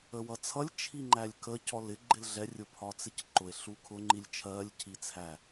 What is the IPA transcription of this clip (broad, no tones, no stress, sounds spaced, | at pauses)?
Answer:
ə w ʌ t͡sʰ ʌ lʲ t͡ʃʰ i ŋ͡ǃ æ lʲ k ə c ɔ l ɪ ɡ͡ǃ ɪ l ɮ ɛ rʲ ʊ pʰ ɒ t͡s ɪ c ǃ ʊ e̯ ɬ u kʰ ʊ ŋ͡ǃ i lʲ t͡ʃʰ ɜ lʲ cʰ i t͡sʰ æ